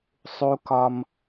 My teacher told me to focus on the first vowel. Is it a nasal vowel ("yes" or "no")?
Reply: no